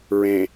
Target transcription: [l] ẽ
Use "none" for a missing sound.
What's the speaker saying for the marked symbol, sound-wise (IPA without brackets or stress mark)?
ɹ